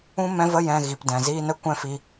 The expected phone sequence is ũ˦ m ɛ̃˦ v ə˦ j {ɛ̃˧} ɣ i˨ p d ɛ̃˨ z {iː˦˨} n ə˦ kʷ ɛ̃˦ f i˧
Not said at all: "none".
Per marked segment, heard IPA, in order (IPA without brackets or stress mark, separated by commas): ɛ̃˧, iː˦